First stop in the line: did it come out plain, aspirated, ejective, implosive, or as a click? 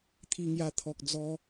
aspirated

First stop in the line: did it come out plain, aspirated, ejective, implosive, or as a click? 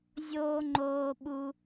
click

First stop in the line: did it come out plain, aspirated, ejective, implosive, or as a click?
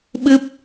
implosive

